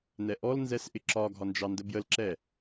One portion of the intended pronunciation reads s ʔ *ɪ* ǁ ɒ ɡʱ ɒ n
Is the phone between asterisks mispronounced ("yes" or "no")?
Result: no